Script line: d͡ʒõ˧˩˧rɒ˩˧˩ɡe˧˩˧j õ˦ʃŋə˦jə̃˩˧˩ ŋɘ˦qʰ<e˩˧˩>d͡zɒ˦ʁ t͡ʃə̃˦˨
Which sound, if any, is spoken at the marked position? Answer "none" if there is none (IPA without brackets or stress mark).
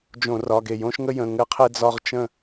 e˦